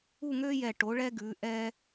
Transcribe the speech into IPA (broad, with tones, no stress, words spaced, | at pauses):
u˥˧ŋø˥jɛ˧˩ ʈo˩˧ɭɛ˧ ɡʉ˩˧ʔɛ˧